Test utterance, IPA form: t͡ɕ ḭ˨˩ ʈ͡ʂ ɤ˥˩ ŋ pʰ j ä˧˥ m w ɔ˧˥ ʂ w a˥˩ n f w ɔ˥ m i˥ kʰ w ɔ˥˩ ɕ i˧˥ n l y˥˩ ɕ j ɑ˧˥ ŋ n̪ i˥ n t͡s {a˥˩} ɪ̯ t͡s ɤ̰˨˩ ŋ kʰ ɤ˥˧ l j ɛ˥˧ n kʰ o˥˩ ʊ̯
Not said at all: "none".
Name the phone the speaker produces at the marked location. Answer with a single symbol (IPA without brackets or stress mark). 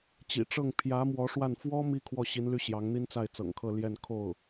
a˥˩